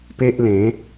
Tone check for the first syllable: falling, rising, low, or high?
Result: high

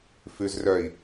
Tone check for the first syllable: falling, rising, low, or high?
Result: low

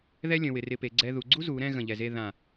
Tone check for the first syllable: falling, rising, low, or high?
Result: high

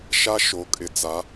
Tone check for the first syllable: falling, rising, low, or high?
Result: high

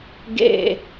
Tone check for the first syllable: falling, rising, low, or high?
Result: falling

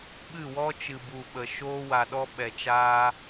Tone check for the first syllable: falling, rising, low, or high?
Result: falling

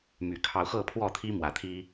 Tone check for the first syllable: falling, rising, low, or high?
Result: low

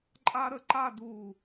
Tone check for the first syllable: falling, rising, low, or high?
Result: high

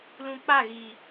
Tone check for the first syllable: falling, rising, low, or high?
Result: low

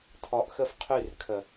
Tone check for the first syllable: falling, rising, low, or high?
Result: low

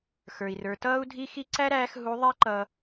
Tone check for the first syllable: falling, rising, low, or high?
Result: low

